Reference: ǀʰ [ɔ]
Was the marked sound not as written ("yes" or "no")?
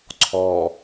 no